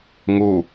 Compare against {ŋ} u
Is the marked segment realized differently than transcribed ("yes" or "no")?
no